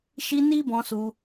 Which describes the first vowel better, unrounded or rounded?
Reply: unrounded